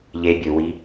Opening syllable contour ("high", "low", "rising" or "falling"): low